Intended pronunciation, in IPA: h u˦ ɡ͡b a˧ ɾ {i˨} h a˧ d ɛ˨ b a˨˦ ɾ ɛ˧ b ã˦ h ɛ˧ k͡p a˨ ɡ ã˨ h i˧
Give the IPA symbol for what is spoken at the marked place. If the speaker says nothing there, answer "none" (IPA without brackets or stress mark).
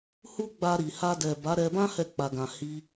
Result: i˨